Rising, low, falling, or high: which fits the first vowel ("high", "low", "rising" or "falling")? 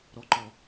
low